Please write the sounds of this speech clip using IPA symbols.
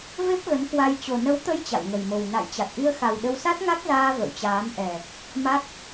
v e˦˥ p̚ ɣ ə˨˦ n k w a˧ j t͡ɕ o˨˩ n ə˨˦ w t̪ ə˧ j t͡ɕ a̰˧˨ w ŋ ə˨˩ j m o˨˩ w n a̰˧˨ j t͡ɕ a˨˩ t̚ ʔ i˧ ə̯ x a˨˩ w ɗ ə˧ w s a˦˥ t̚ ŋ a˦˥ k̚ z aː˧ v ə̰˧˨ w t͡ɕ aː˨˦ m ʔ ɛ˨˩ | m a˦˥ k̚

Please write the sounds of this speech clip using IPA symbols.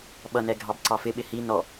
ɓ ʌ n ɛ ɡʱ ɑ b ǀ ɑ f ɪ ɓ ɪ h i n ɔ

